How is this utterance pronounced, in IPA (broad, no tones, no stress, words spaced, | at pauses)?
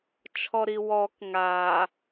t͡ʃʰɔɾiwɔk ŋaː